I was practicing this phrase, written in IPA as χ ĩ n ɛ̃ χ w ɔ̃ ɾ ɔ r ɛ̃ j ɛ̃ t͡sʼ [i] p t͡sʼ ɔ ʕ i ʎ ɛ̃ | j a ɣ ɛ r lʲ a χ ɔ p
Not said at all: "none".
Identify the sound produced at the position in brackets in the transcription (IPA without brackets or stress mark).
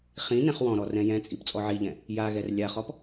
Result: i